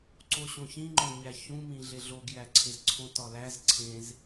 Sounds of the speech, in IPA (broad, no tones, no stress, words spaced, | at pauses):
ǀoɕõçĩŋ͡ǃo ɲæçũmĩ ɮeɮoɡjæǀʰez ǀʰõtɒlæz ǀʰẽz